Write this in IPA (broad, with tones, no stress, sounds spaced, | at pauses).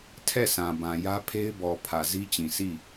tʰ ɛ˦˨ s ã˨ b ã˨ j ä˦ pʰ e˦ ɪ̯ b ɔ˨ pʰ ä˨ z i˦ t͡ɕ ĩ˨ s i˦˨